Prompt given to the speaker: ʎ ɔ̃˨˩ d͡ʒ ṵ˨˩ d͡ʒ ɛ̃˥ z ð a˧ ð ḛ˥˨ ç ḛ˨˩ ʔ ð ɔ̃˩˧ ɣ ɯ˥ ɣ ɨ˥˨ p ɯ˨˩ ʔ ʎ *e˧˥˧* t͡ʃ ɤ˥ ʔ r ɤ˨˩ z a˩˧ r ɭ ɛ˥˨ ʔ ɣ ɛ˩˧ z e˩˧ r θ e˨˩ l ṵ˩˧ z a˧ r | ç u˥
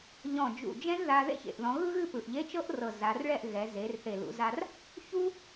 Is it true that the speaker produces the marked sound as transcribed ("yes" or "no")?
yes